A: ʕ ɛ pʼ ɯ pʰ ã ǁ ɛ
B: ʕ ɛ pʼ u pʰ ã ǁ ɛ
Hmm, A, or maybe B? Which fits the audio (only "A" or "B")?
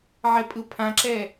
A